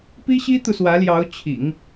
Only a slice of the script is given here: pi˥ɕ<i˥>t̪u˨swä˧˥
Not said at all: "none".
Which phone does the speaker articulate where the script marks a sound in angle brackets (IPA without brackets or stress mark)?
i˥